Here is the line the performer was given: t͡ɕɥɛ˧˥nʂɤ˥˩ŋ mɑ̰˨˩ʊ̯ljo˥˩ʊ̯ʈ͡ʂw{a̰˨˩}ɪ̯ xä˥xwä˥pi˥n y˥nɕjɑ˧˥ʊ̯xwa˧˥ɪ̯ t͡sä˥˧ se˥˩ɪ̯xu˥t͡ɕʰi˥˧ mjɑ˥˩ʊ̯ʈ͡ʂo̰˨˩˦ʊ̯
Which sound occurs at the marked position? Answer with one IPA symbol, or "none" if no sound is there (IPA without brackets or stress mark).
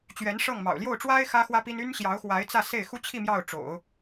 a˥